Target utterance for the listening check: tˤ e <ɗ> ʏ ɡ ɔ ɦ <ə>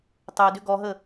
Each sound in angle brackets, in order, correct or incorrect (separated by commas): incorrect, correct